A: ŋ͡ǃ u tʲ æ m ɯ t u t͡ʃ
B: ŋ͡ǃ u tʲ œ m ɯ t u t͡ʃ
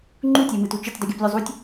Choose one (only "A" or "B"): A